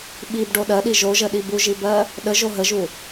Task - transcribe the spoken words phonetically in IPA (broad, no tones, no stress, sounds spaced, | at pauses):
ɓ i b ɖ o ɗ ɜ ɗ i ʒ o ʒ ə ɗ i b u ʒ i b ɜ | ɗ ə ʒ o ɦ ə ʒ u